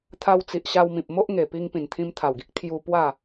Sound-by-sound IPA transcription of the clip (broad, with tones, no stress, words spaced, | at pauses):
t̪ʰa˧wt͡si˨ʔɕa˧wmĩ˨p̚ mo˦ʔŋe˨˩pi˧ŋ pĩ˨˩nt̪ʰĩ˧mt̪ʰa˨˩wɡi˦k̚ t̪ʰju˧ pwa˥˧